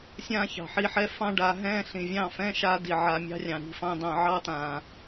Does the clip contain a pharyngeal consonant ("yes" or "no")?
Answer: yes